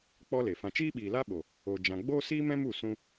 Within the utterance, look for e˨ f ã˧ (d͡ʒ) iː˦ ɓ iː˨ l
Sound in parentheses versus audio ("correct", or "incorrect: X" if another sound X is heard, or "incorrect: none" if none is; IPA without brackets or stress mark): incorrect: t͡ʃ